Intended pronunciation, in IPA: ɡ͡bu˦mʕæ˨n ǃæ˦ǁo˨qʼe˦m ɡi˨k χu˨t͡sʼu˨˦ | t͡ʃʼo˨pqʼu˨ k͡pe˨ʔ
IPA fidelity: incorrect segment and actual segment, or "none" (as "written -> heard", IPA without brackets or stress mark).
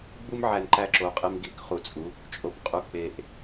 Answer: none